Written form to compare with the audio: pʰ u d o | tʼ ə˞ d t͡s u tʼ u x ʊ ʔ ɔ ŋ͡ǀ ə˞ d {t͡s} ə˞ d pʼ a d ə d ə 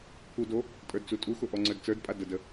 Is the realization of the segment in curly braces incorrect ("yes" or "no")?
no